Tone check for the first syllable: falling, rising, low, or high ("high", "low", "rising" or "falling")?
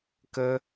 high